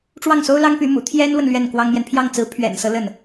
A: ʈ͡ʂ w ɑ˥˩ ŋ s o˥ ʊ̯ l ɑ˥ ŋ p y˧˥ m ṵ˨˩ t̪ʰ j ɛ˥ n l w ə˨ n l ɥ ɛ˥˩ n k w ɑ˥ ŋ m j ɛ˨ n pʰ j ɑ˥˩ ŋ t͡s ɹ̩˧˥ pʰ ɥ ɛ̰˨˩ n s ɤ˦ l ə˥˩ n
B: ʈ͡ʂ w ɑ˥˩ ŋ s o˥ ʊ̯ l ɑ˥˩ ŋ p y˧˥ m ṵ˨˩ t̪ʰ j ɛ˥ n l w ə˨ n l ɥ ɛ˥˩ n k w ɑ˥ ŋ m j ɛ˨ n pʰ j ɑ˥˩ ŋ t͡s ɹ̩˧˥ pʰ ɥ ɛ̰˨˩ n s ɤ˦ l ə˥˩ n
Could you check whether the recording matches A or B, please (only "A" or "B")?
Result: A